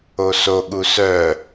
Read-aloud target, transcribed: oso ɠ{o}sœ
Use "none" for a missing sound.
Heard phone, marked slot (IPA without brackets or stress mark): u